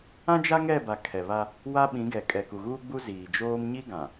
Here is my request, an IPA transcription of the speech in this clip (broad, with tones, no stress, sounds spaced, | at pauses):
ã˦ d͡ʒ a˦ ŋ ɛ˦˨ b a˨ kʰ ɛ˨ β a˦ | w a˦ ɓ ĩ˨˦ ɡ ɛ˨ kʼ ɛ˨ k u˨ ɣ uː˦ ɡ͡b u˦ z iː˨ d͡ʒ oː˦ m ɲ i˦ ɡ ã˨